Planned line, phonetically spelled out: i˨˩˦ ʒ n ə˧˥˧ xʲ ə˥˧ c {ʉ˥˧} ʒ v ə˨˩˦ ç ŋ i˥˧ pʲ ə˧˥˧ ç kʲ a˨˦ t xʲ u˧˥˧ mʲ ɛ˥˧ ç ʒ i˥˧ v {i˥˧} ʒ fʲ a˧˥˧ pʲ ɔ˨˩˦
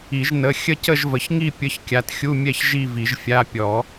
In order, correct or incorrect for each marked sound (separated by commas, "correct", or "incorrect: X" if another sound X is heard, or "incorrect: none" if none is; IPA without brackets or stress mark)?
incorrect: ə˥˧, incorrect: i˨˩˦